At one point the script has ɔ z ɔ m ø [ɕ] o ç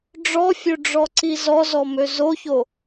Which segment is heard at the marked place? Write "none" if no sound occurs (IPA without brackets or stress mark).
z